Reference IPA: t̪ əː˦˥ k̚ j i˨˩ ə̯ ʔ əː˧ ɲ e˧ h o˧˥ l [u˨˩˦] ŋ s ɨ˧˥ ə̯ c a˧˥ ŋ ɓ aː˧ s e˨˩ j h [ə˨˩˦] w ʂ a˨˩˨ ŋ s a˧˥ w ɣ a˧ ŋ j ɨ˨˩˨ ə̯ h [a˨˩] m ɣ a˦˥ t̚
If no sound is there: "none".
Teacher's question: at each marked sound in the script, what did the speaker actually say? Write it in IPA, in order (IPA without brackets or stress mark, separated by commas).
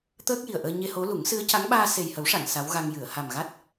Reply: u˨˩˦, ə˨˩˦, a˨˩